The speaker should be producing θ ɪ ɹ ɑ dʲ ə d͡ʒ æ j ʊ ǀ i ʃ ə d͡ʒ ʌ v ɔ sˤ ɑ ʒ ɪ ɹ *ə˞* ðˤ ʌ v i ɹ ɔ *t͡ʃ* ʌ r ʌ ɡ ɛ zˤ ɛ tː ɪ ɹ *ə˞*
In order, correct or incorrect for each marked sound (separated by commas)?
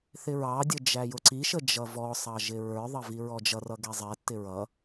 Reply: correct, incorrect, incorrect